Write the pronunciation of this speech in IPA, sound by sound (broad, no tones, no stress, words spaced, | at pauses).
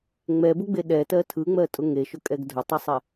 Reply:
ŋ͡mɛbʊɡ͡be ɗɛtɜ tʰɯŋ͡mɜtʼʊ ŋeʃʊkʼɛɡ dʱʊtˤɯsˤɛ